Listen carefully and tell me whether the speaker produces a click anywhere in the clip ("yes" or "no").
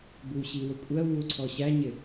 yes